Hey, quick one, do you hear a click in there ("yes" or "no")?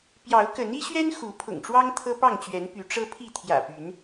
no